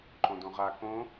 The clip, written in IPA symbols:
ǃ õ d õ ʁ a k õ

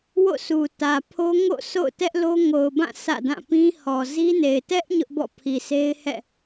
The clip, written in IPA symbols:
w o̰˦˨ s u˨ t ä˨ pʰ o˦ ŋ o̰˦˨ sʰ o̰˦˨ ʊ̯ t ɛ˦ ʔ l o˦ ŋ o˨ ʊ̯ b ã˦˨ s ä̰˦˨ d ã˦˨ p ĩ˦ h ɔ˨ z i˦ n e˨ ɪ̯ t ɛ˦ ʔ ɲ ʊ˦ ʔ b ɔ̰˦˨ pʰ i˨ s e˦ ɪ̯ h ɛ̰˦˨

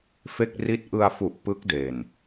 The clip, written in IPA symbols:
f e˥˩ k̚ r i˥˩ t̚ ʔ ɯ˧ a̯ f u˨˩ ʔ p ɯ˦˥ k̚ d e˨˩ n

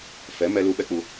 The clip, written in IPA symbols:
f ɛ˨˦ m ɛ˧ l u˧ ɓ ɛ˦ k͡p u˧

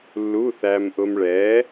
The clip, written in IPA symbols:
lː u˧˥˧ θ æ˧ m ʔ ʊ˧ m ɭ ɛ˨˥

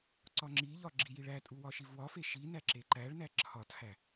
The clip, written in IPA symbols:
ǀ ɒ ŋ͡ǁ i ʎ ɒ ɡ͡ǁ i j i ɭ æ tʼ u w ɒ ʃ i v w ɒ f e ʃ i n æ ǁ e ǃ æ ɭ n æ ǁʰ ɒ tʰ æ

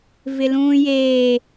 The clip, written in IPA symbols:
v ɪ l ũː j eː

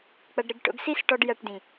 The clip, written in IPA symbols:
k͡p ɐ˧ ɖ ɾ ɨ˧ ɡ ʈ o̰˧ ɡ s i˦ s ʈ ɔ˧ ɖ j ɐ˧ ʈ d ĩ˨

